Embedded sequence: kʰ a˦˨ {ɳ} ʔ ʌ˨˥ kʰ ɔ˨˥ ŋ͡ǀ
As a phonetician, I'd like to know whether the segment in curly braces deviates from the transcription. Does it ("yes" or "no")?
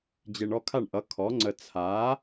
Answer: no